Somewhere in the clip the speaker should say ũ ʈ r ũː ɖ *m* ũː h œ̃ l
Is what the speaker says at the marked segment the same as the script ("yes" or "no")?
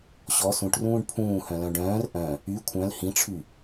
no